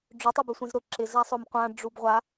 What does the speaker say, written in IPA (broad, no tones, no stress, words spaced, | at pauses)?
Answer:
ɖ͡ʐʊ tˤebøsʷẽzɾʊ ǁɪ zasˤʊmqʷã ɖ͡ʐubʁʷa